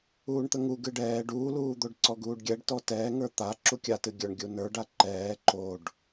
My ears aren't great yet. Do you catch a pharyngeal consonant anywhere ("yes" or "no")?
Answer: no